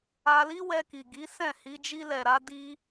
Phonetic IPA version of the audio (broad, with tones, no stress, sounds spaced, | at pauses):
a˧ l i˦ w ɛ˧ k i˨ ɡ i˨˦ s ɛ̃˦˨ h i˧ d͡ʒ i˧ l ɛ˨ ɾ a˧ d i˧